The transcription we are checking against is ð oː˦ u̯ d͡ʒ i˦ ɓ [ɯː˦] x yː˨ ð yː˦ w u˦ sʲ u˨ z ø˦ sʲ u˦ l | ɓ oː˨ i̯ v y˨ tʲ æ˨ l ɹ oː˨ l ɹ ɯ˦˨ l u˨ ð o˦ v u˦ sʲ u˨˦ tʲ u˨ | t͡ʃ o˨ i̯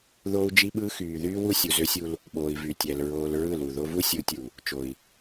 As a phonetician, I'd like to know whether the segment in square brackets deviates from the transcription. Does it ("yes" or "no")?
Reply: no